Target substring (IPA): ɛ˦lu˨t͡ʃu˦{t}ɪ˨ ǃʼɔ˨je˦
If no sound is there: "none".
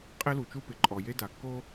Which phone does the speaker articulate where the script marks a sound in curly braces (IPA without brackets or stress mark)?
p